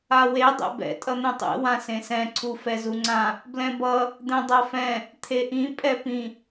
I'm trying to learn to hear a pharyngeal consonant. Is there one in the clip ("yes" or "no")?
no